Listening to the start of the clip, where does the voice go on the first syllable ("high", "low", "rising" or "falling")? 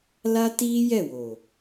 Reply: high